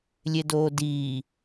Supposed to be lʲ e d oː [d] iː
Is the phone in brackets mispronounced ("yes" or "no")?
no